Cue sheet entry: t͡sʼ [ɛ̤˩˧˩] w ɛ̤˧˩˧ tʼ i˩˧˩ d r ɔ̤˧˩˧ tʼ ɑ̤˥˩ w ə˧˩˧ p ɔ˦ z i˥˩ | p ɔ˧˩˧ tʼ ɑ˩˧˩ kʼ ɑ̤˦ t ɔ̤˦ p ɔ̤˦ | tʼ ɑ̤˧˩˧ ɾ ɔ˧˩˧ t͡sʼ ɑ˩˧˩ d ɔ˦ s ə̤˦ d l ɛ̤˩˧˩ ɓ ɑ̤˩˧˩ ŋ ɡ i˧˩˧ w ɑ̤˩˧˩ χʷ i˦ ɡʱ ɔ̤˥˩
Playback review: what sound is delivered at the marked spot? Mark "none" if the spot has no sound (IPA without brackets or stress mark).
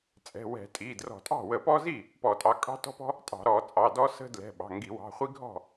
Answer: ɛ̤˩˧˩